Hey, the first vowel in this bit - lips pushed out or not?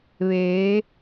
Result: no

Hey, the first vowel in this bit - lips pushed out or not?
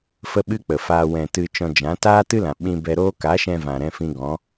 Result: no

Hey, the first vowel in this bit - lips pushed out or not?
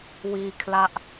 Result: no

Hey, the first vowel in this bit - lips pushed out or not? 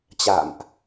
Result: no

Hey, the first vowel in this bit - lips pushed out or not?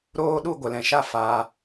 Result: yes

